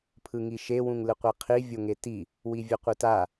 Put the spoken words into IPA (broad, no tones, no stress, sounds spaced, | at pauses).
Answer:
pʰ ɯ ŋ i ʃ e w ũ ŋ l ɯ qʷ e qʰ i vʲ o ŋ e t i | w i vʲ ɘ qʷ ɯ t a